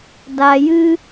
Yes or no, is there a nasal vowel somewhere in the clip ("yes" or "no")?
no